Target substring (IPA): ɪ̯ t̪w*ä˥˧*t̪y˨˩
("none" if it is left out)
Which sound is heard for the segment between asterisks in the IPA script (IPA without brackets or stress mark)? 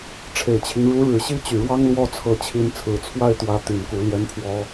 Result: ä˥